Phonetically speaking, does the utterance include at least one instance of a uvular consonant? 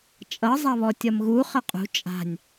yes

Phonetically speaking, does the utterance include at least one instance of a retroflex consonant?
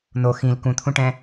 yes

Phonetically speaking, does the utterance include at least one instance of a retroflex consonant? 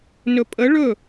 yes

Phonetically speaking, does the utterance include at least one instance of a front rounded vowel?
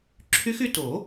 yes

